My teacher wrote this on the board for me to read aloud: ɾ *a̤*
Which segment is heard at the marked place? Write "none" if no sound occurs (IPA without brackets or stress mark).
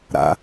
a̰